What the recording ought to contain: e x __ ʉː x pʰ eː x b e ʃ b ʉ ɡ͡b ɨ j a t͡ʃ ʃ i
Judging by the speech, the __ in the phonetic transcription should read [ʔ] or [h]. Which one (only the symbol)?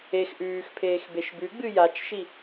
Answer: ʔ